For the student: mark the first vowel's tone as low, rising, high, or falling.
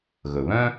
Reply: low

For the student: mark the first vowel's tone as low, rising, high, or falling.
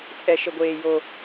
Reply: high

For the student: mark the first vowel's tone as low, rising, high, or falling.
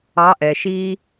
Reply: rising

